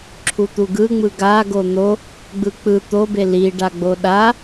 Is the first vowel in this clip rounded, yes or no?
yes